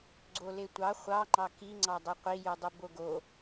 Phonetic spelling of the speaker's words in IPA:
ɡ͡ǀ o l e tʷ ɑ χʷ ɑ ŋ͡ǃ ɑ k i ŋ͡ǀ ɑ dˤ ø qʷ i j u dˤ ɯ b o ɡ o

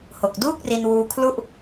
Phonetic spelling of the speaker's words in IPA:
h o˨˩ k̚ d uː˥˩ k̚ r i˧ n w uː˧ kʰ l u˥˩ ʔ

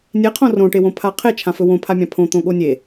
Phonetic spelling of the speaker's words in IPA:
nʲ e qʰ õ r õ ʈ e w õ pʰ a qʰ e t͡ʃʰ ã f ɵ w õ pʰ a mʲ ã pʰ õ t̪ õ ɠ o nʲ e

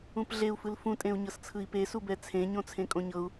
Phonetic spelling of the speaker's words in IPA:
ũ p ɮ e u̯ f ɯ l f ũ tʼ ẽ u̯ ɲ ɤ s t͡sʰ ɯ i̯ p e s u b ɛ t͡sʰ ẽ ɲ õ t͡sʰ ẽ kʼ õ ɲ ɤ u̯

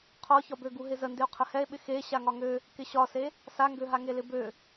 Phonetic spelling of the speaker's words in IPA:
qʰ ɒ ç ɒ b ø ɡ u ɦ ɪ z ə n d ɪ o̯ qʰ ə h ɛ e̯ ɓ ɪ x e ɕ a ŋ ɒ ŋ ø | k ɪ ɕ ɒ s e | s a ŋ ɡ ø ɦ a ŋ e l ɪ b ø

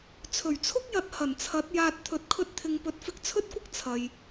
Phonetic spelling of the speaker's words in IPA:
t͡sʰ ɵ˨˩ ɥ t͡sʰ ʊ˥ k̚ j ɐ˨˥ t̚ h ɐ˨˩ n t͡sʰ ɐ˨˥ t̚ j aː˧ t̚ t̪ʰ ɵ˧ t̚ kʰ ɵ˥ t̚ t̪ʰ ɪ˧ ŋ p ɵ˨˥ t̚ f ɪ˧ k̚ t͡sʰ ɵ˥ t̚ kʷ ɪ˥ k̚ t͡sʰ ɐ˨ j

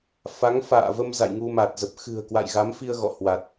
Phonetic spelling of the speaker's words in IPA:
f a˨˦ ŋ f a̰ː˧˨ v ə˧ m z a̰˧˨ j ŋ u˧ m a˨˩ t̚ z ə˨˩ p̚ x ɨ̤˨˩ ə̯ k w a̰˧˨ j ɣ a˨˦ m f i˧ ə̯ ɣ ɔ̰˧˨ h w a˨˩ t̚

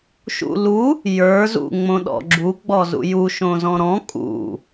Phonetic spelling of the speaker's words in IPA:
ʃ ṵ l u | j ə˞ z ṵ ŋ͡m õ ɗ ɔ̰ ɡ͡ǁ u ɡ͡b ɔ z ṵ j u ʃ õ z ɔ̃ ɾ ɔ̃ kʼ ṵ

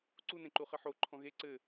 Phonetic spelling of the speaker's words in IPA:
ǀ u n ẽ ǃ u χ ɘ ħ o ǃʰ ɔ̃ ɣ e ǀ ɘ

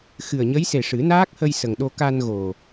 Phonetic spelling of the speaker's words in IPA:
x ɨ˨˩ ə̯ ɲ ə˧˥ j s e˨˩ ʂ ɨ˨˩˦ n aː˦˥ k̚ h ə˧ j s ə˨˩ ŋ ɗ o˧ k a˧ n ɣ o˨˩

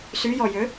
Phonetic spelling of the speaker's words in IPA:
s y j ɔ j ø

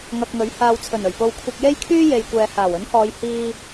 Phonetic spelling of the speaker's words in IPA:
ŋ ɐ˧ k̚ ŋ ɵ˨˥ ɥ h aː˨ w t͡sʰ ɵ˨˩ n ɵ˨˩ ɥ p o˧ w kʷʰ ɐ˧ k̚ j e˥ j kʰ yː˥ j e˨ j kʷ ɛː˨ h aː˨˩ w ɵ˨˥ n h ɔː˨˧ j h iː˧

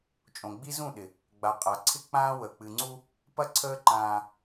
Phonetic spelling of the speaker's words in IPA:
t͡ʃʼ õ˨ ɡ͡b i˦ z ũ˦˨ ɗ ɪ˨ | ɡ͡b a˨ qʼ a˨ ǀʰ ɪ˦ k͡p ãː˦ w əː˨ k͡p ɨ˨ ŋ͡ǀ u˦ | p ɐ˦ ǀʰ əː˦ ǃ ãː˦

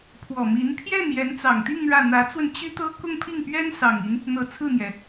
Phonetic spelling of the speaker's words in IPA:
pʰ w ɔ˨˩ m i˧˥ n pʰ j ɛ˥˩ n j ɛ˧˥ n t͡s ɑ˨˩ ŋ t̪ i˥˧ ŋ ɻ ä˥˩ n̪ ä˧˥ t͡s w ə˧ n t͡ɕ y˥ t̪ ɤ˥ k ʊ˥˧ ŋ pʰ i˥˩ ŋ p ɥ ɛ˥ n s ɑ˨˩ ŋ i˦ n | n̪ ɤ˨˩ t͡sʰ ɹ̩˥˩ n̪ j ɛ˩

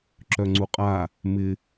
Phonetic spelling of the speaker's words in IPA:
ǁ œ ŋ͡ǀ u qʼ a | m ɪ

